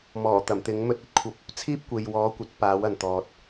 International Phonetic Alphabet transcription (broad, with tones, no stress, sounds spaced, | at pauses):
m ɔː˨˩ t̪ ɐ˨˩ m t̪ ɪ˨˥ ŋ m ɵ˧ t̚ ɵ˨ t̚ kʷʰ ɐ˧ p̚ | t͡sʰ iː˥ p̚ kʷ e˨ j w ɔː˨˥ kʷ ɐ˨˥ t̚ p aː˨˥ w ɐ˨ n t̪ ɔː˨ t̚